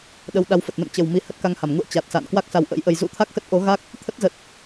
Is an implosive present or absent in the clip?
present